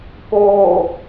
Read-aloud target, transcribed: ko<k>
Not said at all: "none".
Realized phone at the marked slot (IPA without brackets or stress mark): none